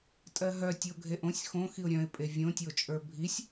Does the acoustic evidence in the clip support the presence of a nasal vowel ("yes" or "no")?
yes